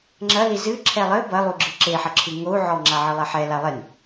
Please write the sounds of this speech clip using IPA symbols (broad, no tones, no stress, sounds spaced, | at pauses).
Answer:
ŋ͡ǁ ɐ l i z ɨ ǁʰ ɛ lˠ ɘ b ɐ lˠ u ɡ͡ǁ ɨ ǁ e ħ ɐ ǁʰ ɨ ŋ o u̯ ʕ ɔ ŋ͡ǁ a ʕ ɨ lˠ ɛ ħ ɛ l a lˠ e n